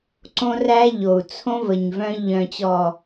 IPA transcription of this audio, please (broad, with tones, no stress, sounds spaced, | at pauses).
ǀ õ˦ r æ˦ ʎ o˨ u̯ t͡sʰ õ˦ v ə˨ ɲ v œ̃˧ ʎ œ̃˨ t͡ɕ ɔ˨